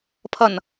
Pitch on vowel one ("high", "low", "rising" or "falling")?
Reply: low